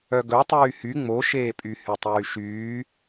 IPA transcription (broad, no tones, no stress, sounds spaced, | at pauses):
œ ɡ ɵ tˤ yː h y ŋ͡m o ʃ eː pʼ y h y tˤ yː ʃ yː